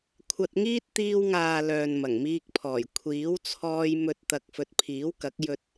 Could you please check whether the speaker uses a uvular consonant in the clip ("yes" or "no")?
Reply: no